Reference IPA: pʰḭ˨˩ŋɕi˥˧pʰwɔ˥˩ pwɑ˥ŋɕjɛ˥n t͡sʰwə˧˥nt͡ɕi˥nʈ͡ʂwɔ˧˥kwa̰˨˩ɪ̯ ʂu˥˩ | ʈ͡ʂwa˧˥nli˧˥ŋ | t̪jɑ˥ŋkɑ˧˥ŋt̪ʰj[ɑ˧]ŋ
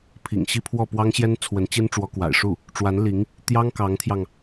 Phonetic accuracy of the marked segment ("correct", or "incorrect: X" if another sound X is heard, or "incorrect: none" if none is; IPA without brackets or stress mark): correct